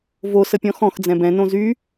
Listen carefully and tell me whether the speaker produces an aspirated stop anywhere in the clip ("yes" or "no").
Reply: no